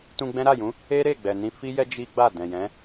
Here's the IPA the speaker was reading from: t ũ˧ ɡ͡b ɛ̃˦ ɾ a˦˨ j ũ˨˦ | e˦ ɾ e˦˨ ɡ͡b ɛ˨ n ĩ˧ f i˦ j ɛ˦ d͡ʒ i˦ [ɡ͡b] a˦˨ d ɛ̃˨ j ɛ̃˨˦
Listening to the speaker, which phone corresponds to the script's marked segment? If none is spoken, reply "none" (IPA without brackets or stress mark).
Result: ɡ͡b